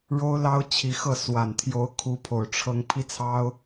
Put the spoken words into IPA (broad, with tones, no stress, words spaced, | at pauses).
ɻo˥ʊ̯lɑ˥ʊ̯ t͡ɕʰi˧˥xɤ˥˩ swa˨˩nt̪ʰjo˧˥ʊ̯ kʰu˧˥pʰo˨˩ʊ̯ʈ͡ʂʰɤ˧˥ŋ pʰi˥t͡sʰɑ˥ʊ̯